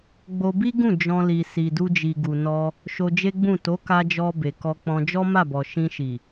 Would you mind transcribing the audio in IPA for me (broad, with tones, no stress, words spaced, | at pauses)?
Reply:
ɡ͡bo˧bi˦ ɡũ˦˨ d͡ʒɔ̃˧li˨ si˨du˧d͡ʒi˨ ɡu˨nɔ˧ | ʃo˧ d͡ʒe˦ɡ͡bũ˦˨ to˨˦ka˧d͡ʒɔ˧ be˨kɔ˧k͡pɔ̃˧ d͡ʒɔ˦ma˦˨bɔ˨ ʃĩ˧ ʃi˨